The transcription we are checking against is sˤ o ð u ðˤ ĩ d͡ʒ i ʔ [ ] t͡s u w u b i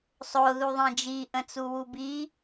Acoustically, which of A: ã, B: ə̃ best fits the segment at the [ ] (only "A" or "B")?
B